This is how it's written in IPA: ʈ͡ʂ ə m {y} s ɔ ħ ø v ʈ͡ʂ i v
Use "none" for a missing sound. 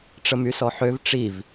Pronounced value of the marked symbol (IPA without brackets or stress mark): y